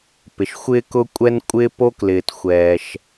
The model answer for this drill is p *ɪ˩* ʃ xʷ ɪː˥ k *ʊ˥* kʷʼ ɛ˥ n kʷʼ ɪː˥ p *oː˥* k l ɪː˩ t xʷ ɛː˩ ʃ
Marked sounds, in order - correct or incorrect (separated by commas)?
correct, correct, incorrect